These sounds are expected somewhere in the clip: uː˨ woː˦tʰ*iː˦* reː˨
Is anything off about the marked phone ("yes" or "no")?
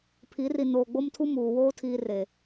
yes